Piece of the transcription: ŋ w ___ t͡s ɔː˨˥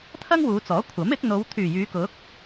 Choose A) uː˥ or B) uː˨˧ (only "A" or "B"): B